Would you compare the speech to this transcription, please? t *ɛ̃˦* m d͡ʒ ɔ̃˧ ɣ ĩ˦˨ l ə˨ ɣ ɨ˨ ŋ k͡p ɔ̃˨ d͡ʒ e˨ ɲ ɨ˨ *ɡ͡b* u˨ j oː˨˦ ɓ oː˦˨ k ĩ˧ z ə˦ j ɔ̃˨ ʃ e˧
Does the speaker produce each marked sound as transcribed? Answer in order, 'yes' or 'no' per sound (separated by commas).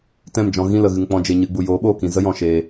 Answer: no, yes